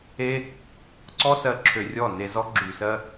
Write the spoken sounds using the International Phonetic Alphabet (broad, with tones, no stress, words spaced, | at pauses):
e˦ | ǀɔ˦sɜ˧ ǁʰø˧rʲɔ˦˨ne˧zɔ˦ ɡ͡ǁy˨sɜ˧